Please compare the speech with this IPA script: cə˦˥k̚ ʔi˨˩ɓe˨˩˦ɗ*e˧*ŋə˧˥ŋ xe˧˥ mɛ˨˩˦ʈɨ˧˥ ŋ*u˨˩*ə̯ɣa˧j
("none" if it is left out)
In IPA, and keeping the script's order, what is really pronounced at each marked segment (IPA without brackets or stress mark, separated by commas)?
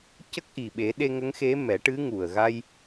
e˧, u˨˩